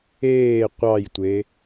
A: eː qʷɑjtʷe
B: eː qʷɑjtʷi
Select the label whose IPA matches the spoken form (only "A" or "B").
A